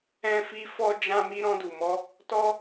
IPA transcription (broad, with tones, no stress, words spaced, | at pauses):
ɛ̃˦fi˦ fɔ˦ d͡ʒã˦mi˦ ɾɔ̃˧du˨mɔ˧ | tɔ˦